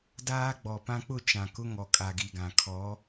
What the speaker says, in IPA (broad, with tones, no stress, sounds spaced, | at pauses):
d aː˦ ɡ͡b ɔ˨ p ã˦ k͡p ʊ˦˨ t͡ʃ ã˨ k ʊ˦ ŋ ɔ˨ kʼ a˨ ɡ i˨ ɡ ã˨ kʰ ɔ˨˦